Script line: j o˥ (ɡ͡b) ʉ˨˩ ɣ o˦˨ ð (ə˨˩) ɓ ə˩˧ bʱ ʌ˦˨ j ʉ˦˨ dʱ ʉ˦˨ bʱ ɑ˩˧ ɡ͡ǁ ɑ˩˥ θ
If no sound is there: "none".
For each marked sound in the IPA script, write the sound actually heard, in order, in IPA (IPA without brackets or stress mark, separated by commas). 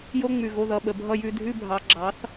ŋ͡m, ʌ˨˩